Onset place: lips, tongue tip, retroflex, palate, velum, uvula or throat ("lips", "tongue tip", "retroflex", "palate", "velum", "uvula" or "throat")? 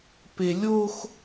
lips